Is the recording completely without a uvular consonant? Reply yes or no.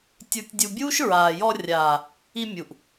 yes